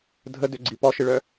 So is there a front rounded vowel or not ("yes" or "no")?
yes